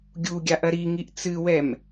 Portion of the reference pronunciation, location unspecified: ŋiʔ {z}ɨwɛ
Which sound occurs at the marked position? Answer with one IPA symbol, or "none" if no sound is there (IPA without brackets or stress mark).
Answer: t͡s